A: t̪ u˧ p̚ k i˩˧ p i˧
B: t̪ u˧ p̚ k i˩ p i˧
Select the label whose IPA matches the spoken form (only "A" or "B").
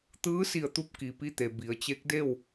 B